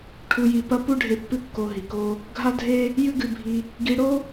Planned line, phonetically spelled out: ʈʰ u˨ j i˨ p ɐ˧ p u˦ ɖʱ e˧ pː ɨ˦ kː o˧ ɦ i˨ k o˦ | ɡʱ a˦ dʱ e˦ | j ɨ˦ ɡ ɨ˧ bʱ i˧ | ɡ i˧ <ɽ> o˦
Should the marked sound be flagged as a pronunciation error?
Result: no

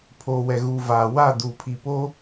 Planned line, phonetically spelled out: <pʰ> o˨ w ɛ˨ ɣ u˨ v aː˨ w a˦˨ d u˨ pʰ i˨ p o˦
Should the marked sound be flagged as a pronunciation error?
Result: no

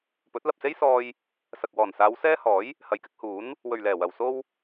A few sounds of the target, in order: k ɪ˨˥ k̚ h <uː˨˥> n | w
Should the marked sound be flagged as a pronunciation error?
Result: no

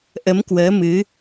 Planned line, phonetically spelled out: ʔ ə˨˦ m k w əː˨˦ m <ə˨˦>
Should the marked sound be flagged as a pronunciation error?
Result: yes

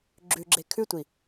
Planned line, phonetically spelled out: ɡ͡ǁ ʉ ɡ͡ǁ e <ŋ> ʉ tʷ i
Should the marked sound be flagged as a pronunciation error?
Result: yes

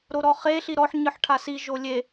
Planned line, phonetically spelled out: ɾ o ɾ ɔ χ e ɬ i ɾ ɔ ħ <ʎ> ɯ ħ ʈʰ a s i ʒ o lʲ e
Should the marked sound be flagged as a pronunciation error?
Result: yes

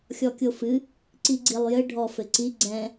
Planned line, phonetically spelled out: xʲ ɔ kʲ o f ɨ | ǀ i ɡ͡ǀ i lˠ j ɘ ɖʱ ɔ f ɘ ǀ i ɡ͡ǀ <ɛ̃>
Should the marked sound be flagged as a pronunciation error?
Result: no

